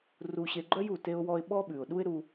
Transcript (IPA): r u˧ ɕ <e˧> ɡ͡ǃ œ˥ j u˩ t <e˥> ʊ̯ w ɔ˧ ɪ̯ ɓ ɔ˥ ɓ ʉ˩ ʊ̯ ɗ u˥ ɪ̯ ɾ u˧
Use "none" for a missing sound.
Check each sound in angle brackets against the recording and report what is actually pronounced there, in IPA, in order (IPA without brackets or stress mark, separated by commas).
e˧, e˧